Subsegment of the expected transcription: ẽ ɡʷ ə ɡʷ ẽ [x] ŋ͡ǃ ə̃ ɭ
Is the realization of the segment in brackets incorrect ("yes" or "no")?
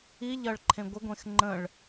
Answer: no